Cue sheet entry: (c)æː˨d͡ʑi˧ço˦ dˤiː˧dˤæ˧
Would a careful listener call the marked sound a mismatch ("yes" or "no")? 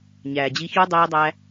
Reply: yes